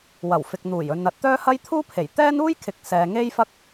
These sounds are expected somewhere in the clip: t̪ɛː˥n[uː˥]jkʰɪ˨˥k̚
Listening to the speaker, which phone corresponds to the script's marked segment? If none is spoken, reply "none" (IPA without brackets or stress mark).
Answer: uː˥